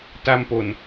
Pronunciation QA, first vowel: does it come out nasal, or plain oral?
oral